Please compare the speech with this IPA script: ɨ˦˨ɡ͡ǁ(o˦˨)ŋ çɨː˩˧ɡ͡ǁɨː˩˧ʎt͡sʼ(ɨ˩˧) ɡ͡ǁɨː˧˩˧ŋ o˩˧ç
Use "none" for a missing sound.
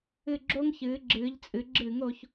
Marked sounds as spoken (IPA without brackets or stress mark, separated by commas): o˥, ɨ˩˧